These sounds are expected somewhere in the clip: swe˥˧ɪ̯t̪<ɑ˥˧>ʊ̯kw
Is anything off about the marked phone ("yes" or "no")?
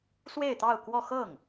no